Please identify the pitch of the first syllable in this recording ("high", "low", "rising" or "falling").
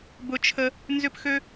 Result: high